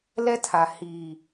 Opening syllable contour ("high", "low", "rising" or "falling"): high